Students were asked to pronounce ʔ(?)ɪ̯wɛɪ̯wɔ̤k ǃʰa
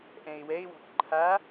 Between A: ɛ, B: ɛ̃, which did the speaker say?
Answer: B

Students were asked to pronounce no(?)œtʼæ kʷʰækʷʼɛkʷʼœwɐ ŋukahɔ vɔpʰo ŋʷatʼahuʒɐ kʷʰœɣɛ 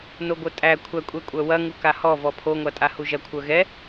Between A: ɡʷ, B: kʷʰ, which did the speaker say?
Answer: A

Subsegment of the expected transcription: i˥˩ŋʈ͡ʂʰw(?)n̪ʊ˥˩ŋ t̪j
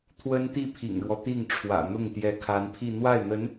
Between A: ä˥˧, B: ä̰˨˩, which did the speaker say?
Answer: B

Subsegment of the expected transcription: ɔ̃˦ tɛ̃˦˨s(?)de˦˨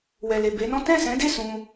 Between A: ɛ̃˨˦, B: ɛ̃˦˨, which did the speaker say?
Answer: A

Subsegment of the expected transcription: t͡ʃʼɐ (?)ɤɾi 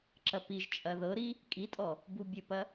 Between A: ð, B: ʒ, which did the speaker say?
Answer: A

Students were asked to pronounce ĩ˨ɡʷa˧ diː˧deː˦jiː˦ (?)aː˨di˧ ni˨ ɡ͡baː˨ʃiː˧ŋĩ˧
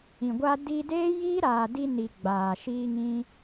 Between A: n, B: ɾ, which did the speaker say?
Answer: B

